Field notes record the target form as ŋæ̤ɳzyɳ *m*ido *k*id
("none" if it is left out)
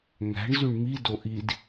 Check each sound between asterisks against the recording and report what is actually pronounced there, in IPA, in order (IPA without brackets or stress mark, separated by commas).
m, ʔ